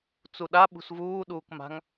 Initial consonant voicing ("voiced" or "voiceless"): voiceless